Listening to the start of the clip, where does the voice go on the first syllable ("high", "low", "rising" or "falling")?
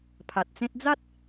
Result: low